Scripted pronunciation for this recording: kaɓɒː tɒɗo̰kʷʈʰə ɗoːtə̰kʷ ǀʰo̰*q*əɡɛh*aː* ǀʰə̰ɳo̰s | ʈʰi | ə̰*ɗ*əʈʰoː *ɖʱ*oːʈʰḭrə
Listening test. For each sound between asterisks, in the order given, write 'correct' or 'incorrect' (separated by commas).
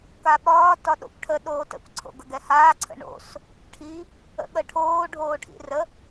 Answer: incorrect, correct, incorrect, correct